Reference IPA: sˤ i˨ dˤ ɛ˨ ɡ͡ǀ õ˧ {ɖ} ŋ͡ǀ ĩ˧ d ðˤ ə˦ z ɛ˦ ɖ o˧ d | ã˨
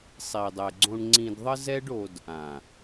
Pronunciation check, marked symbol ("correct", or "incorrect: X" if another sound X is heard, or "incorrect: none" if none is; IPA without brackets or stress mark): incorrect: ɳ